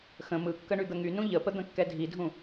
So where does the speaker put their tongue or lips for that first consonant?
velum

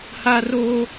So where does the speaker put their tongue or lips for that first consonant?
throat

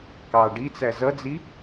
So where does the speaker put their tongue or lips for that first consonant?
velum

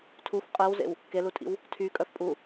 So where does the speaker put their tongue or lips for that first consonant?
tongue tip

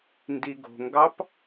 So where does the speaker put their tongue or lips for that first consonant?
tongue tip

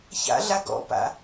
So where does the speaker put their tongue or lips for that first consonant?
palate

